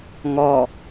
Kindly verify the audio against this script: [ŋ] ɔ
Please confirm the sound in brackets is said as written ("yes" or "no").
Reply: yes